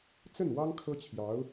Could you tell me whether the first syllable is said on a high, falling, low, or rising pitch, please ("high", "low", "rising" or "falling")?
falling